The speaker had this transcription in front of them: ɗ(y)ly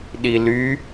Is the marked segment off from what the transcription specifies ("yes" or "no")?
yes